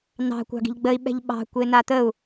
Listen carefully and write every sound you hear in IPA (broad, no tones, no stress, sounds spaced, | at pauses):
n ɑ̤ kʷ ɑ̤ ɡ i̤ ʎ ɡ͡b ə i̯ ɓ ɛ̤ ʎ ɓ ɑ̤ kʷ e n a t̪ ə u̯